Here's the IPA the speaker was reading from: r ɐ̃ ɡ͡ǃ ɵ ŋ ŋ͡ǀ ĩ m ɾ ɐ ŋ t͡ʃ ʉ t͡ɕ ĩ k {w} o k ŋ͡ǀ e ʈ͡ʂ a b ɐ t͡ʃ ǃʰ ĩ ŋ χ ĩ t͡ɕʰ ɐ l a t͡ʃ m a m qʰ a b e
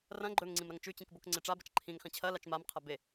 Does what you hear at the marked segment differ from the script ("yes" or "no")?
yes